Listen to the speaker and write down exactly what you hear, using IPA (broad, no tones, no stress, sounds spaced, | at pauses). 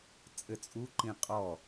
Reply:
t͡sʼ ɘ t͡sʼ u ǃ ĩ qʼ ɔ